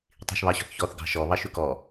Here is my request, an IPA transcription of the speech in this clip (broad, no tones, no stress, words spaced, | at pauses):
tˤi̤ʃβɑɕɔ̤θçɔθ ɡɑ̤ʃɔ βɑʃʉkɔ